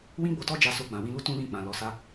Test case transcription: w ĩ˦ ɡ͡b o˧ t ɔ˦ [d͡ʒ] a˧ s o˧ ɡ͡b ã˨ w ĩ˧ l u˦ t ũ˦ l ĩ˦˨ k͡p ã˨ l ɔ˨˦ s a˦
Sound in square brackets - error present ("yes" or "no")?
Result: no